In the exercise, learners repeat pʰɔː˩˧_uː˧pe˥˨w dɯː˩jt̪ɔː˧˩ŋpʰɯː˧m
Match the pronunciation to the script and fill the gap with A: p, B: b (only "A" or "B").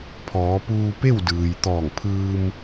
A